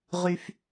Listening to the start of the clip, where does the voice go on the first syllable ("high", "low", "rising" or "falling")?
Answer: low